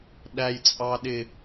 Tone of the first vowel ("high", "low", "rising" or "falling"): low